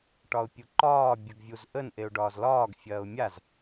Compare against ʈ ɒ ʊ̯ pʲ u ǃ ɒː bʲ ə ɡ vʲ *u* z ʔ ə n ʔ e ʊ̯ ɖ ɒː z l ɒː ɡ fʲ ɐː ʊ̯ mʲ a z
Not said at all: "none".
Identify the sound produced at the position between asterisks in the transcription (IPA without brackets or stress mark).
u